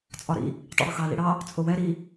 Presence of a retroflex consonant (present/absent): present